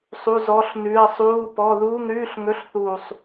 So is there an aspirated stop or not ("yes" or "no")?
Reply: no